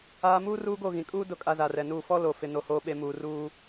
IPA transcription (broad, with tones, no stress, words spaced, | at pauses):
aː˦ muː˦ ruː˦ɡo˦˨ɣĩ˨ kʼuː˦ dʊ˦˨ kʼa˦za˨rɛ˨nuː˦˨ fɔ˦ lo˨fɪ˨no˨ hoː˨ɓe˨ muː˨ruː˦